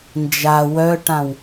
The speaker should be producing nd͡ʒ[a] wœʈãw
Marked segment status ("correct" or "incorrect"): correct